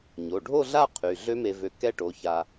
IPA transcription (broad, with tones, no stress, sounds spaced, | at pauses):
ɲ o˩˧˩ ɖʱ o˥˧ ɮ a˥˧ qʰ y˩˧˩ ɮ ø˦˥ m e˧ v ø˧ k ɛ˦˥ ʈ o˩˧˩ ç a˧